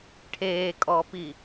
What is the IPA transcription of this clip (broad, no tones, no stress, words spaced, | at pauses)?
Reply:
ʈʰeːkʼɔːpi